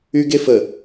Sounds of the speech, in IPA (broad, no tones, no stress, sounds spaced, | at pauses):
y ɡ e f ə